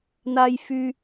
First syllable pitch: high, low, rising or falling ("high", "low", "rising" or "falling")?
high